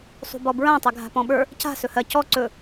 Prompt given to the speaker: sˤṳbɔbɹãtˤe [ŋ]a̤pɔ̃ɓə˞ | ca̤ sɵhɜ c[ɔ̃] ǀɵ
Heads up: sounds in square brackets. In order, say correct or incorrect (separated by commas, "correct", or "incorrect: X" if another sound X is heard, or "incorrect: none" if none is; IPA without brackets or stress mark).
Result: incorrect: ɡʱ, incorrect: ɔ